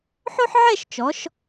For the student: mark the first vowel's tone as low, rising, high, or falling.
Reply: high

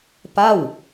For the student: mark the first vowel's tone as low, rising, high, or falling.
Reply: falling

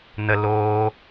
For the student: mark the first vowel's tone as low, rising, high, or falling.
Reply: high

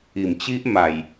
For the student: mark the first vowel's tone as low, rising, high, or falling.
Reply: low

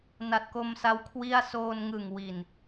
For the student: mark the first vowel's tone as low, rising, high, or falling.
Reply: low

